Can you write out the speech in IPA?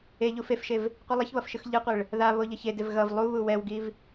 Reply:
e ʎ u f e f ʃ e v | qʷ i lˠ ʌ ç β ʌ f ʃ ɯ x ʎ ɯ qʷ e ɭ | ð a β o ʎ ʌ ç e d e v ɣ ʌ v lˠ u β u w ɛ w ɡ i v

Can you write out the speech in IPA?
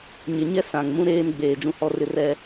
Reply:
ɲ ɪ˨ ɲ ɛ˦ s ã˨ ŋ m ũ˦ ɾ eː˦ m ɡ͡b eː˨ d͡ʒ ũ˦ h ɔ˦ r ɪ˦ r ɛ˦

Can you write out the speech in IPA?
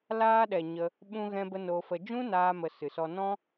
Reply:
l aː˧ ɗ ɛ˨ ɲ ə˧ | ɓ ũ˧ ɣ ɛ̃˧ b ə˧ n o˧ f ə˧ d͡ʒ ũ˦ n aː˦ m ə˧ s ɨ˨ s ɔ˧ n ɔ̃˧

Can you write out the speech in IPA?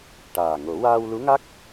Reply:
ʈ aː˨˩ ŋ o˨˩˦ w aː˧ w l u˧˥ ŋ a˦˥ k̚

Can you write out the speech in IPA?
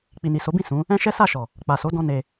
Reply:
k͡p i˨ n i˨ s o˨˦ b ĩ˦˨ s ũ˨˦ | ɛ̃˦ ʃ ɛ˦ s a˦˨ ʃ ɔ˨ | k͡p a˨ s o˨˦ d ɔ̃˧ n e˧

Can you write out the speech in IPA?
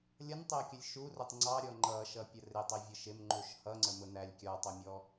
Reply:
lʲ ʌ n tˤ ɪ ə̯ kʲ ə lʲ ʃ u r ʊ tˤ ŋ͡ǀ ɑ ɾʲ ɔ ŋ͡ǃ ʌ ʃ ʌ pʲ ə r ɪ tˤ i vʲ ə ʃ ɪ m ŋ͡ǃ u ʃ h ʌ ŋ͡ǀ ə m ʊ n æ lʲ kʲ ɔ tˤ ʊ mʲ ɔ

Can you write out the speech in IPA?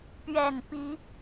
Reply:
p ɥ ɛ˨˩ n p i˨˦

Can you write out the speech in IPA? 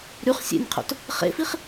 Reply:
ɾ y χ sʲ ḛ nʲ qʰ o̰ t | χ ḛ f i χ

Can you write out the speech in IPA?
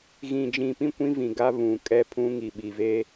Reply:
ɣ ĩ˨ d͡ʒ ĩ˨ p ĩ˦ kʷ ĩ˦ v ĩ˨ ɡ a˦ β ũ˨ kʼ ɛ˦ pʰ ũ˦ ŋ i˨ ɓ i˨ v eː˦

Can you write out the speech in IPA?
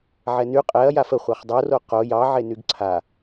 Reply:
ʕ ɛ n y qʼ ɛ ɐ̯ j a f ə χʷ ɑ χ dˤ o r o q o j ɑ ʕ e n y ɡ ǀʰ a

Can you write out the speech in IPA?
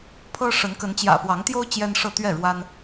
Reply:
pʰ ɤ˦ ʂ ə˨˦ n k ə˨˦ n t͡ɕ j ä̰˨˩ f w ɑ˨˦ ŋ t̪ j o˦ ʊ̯ t͡ɕ j ɛ˦ n ʂ ɤ˥˨ t̪ ɥ ɛ˥˨ ɻ w a˦ n

